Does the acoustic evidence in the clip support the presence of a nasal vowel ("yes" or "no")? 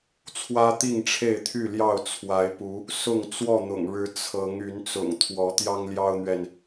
no